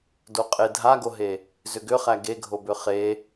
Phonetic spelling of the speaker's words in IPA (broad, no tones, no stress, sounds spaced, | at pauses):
d o qʼ e dʱ a ɡ o ɦ e | z ʏ ɡ ʏ χ æ ɡ e ɡʱ o b ʏ χ e